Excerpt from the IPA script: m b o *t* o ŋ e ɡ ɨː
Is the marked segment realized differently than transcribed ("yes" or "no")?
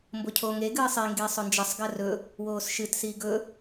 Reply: yes